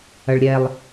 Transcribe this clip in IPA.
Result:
ɐ ɭ ɾʲ ɛ lˠ

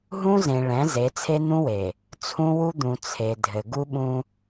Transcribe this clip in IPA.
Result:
ɦ ũ˦ z ẽ˨ ɭ ɛ̃˨˦ z e˨˦ t͡sʰ e˦ n̪ ũ˦ w e˨ | t͡sʰ ũ˦ w u˦ d̪ ũ˨ t͡sʰ e˨ dʱ ɘ˨ ɡ u˦ ɓ ũ˦

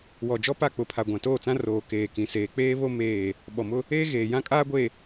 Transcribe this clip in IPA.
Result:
w ɔ˨ d͡ʒ ɔ˦ p a˦˨ k͡p ʊ˨ pʰ a˨ ɡʷ ã˨ t oː˦˨ t͡s ã˦ r oː˨ k eː˨ k ĩ˨ s eː˨ k͡p eː˦ β o˦ m eː˦˨ | ɓ ɔ˨ m ʊ˦ | eː˦ ɣ eː˨ j ã˦ kʼ aː˦ ɡʷ e˨

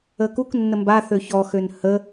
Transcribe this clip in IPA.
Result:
ə k u k nː ə m b a θ ø ç ɔ x ø n h ə

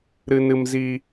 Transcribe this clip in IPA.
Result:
ɾ ɨ˦ n ɨ˦ m z i˦

